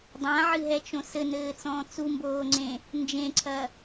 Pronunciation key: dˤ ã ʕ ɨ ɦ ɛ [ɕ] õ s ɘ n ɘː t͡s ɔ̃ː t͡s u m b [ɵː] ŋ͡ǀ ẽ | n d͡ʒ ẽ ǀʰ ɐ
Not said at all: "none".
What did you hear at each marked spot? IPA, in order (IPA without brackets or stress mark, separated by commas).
t͡ʃ, oː